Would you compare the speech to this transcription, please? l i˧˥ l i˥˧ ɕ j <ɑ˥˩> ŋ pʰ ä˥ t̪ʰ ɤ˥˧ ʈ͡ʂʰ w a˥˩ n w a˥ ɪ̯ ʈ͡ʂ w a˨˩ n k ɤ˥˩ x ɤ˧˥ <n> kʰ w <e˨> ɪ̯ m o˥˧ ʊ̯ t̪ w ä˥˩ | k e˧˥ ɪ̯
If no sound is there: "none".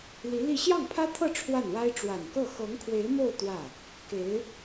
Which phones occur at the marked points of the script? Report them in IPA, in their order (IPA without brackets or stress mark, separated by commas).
ɑ˥˩, ŋ, e˧˥